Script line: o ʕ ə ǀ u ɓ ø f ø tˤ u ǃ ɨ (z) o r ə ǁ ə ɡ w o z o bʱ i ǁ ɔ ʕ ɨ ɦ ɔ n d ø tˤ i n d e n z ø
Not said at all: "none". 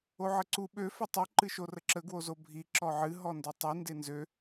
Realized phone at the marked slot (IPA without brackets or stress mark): ʃ